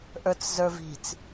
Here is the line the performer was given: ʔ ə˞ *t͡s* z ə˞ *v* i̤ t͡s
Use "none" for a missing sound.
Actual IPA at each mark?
t͡s, v

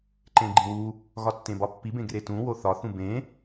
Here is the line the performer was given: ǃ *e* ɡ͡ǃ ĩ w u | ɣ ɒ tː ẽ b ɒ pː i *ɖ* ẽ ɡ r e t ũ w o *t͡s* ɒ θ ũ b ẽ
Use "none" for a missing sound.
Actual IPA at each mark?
ẽ, b, θ

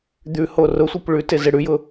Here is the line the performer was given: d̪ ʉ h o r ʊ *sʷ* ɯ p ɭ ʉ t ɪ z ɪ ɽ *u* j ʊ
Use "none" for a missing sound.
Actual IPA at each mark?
sʷ, ʉ

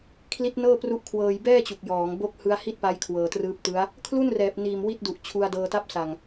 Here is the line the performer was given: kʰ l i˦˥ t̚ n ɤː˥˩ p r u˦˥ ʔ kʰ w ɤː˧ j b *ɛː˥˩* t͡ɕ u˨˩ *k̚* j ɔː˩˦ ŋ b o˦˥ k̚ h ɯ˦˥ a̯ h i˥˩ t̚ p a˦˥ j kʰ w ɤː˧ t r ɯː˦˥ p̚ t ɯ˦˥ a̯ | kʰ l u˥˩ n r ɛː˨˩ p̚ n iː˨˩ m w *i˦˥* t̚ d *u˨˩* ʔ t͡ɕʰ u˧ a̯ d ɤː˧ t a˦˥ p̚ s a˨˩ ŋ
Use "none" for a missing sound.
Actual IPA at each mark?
ɛː˥˩, k̚, i˦˥, u˨˩

